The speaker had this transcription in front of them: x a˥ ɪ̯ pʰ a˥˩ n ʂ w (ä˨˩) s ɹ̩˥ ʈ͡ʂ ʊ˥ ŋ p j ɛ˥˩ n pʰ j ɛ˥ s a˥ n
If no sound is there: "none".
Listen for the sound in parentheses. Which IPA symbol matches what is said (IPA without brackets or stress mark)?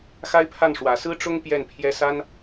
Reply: ä˨˩